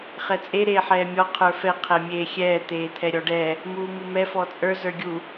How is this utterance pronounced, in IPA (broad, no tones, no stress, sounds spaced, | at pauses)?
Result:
χ ɛ t͡sʼ e ɾ eː ħ ɛː mʲ ɔ qʰ ə˞ f ɛ qʰ ɛ mʲ eː xʲ ɛː t̪ eː t̪ʰ ɛ ɾʲ ɔ ɖ ɛ | m uː m u m ɛ f ɔ t͡sʼ ə˞ z ə˞ ɡʲ u